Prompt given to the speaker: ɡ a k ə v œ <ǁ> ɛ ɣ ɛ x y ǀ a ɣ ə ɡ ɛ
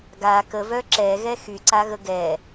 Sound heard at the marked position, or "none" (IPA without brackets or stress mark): ǁ